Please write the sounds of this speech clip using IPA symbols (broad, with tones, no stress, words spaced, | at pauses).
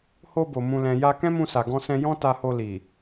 ho˧bo˨ mũ˨lɛ̃˨ja˧ kɛ̃˦mũ˧sa˨ ɡɔ̃˧sɛ̃˧jɔ̃˦ ta˧ho˧li˨